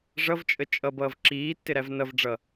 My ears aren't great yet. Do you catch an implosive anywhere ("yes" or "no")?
no